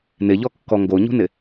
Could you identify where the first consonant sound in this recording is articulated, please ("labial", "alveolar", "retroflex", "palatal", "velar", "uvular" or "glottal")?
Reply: alveolar